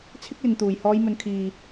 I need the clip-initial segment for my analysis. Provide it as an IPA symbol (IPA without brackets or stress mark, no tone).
t͡sʰ